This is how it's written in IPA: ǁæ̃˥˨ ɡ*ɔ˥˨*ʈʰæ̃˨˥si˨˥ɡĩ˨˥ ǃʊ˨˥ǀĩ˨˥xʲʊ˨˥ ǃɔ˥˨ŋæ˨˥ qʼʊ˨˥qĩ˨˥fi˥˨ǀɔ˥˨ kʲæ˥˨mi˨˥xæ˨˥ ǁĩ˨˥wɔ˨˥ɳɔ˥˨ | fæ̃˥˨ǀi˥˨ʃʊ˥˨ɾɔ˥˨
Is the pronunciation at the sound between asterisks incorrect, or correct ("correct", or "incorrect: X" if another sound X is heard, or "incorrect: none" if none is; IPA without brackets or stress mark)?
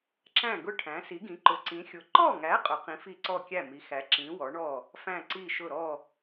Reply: incorrect: ʊ˥˨